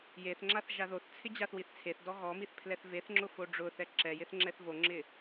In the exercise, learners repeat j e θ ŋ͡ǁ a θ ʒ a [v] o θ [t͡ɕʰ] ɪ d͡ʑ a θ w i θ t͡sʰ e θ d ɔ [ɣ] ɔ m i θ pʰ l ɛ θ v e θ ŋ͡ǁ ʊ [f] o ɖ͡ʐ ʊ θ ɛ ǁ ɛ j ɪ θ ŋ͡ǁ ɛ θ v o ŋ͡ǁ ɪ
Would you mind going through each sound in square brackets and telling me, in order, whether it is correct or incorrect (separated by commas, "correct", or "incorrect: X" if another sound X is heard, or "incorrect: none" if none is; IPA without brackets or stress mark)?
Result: incorrect: ð, incorrect: t͡sʰ, correct, correct